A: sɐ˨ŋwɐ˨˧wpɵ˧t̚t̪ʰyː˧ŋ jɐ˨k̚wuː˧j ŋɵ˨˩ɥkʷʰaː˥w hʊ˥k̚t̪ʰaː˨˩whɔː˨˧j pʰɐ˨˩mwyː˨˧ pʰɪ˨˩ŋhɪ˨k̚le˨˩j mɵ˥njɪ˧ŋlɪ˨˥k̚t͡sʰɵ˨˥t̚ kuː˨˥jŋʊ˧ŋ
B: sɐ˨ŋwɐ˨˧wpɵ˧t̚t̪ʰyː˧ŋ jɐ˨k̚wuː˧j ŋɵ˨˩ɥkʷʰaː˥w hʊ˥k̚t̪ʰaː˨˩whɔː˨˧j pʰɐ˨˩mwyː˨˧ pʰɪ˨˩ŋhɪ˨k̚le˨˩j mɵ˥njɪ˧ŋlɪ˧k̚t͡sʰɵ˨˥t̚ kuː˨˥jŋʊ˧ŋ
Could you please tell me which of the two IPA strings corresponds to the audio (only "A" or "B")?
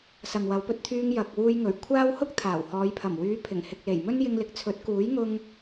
A